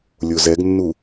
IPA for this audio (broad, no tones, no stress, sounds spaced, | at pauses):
lʲ o z ɛ ɡ nː u